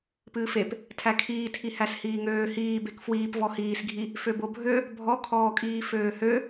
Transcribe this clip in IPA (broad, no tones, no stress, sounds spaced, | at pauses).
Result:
p ɨː f e p | tʰ æ kʰ iː tʰ i h æ s h iː ŋ øː h iː b e k f w iː p v ɔ h iː s ɡʱ i | f ø b o bʱ ø | bʱ ɔ kʰ ɔː kʼ iː f øː h ø